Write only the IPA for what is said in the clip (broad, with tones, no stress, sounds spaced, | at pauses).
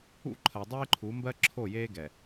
ṵ˦ ǃʰ ɜ˨ dˤ eː˦ ǃʰ u˨˦ m b ɜ˦ ǁʰ o˦˨ j eː˦ ɡ ɛ˨